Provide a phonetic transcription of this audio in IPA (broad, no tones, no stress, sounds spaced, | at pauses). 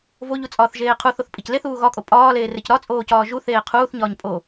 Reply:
v o ʎ u t͡sʼ ɒː θ ʒ eː qʰ u θ o θ pʼ i c l e θ uː ɣ ɒ kʼ o pʼ ɒː l eː r e c ɾ ɒ t͡sʼ oː c ɒː ʒ u θ eː qʰ uː θ ɲ ɒː ɲ pʼ o